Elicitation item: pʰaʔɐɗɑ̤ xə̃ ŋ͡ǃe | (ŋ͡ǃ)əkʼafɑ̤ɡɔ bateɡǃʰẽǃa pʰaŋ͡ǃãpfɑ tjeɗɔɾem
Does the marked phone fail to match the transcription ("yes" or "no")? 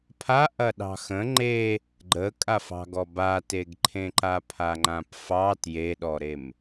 yes